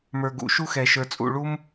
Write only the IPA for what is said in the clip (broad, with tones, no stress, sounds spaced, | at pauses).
m ə˞˨ ɡ ṵ˨˩˦ ʃ u˦ x ɛ˨ ʃ ə˞˨ t͡sʼ ṵ˨ ɭ u˦ m